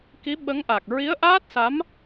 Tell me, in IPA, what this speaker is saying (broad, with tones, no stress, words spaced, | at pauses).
ki˧˥ɓə˧˥ŋʔa˨˩k̚ ɹi˧˥ə̯ʔaː˦˥t̚sa˧˥m